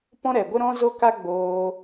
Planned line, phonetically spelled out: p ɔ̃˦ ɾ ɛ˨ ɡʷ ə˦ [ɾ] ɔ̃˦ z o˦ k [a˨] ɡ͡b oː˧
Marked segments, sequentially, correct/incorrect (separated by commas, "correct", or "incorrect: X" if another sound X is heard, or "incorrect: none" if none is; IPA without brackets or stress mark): correct, incorrect: a˦